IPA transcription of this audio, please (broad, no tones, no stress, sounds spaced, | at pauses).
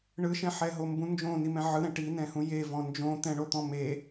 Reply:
ɳ ɯ ʃ ɛ̃ ħ ɛ ɦ o m b ũ n d͡ʒ õ n i m ɛ̃ ʕ ɯ ɾ ɛ̃ ʈ i n ɛ̃ h ũ j e v ɔ̃ n d͡ʒ õ t̪ ɛ̃ ɳ o t̪ ɔ̃ m e